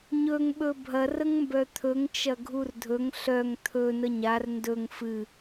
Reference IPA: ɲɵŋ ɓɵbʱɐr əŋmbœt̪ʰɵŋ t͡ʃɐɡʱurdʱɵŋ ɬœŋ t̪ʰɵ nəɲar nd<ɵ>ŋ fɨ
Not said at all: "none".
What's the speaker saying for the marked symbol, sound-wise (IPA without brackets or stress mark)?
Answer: ɵ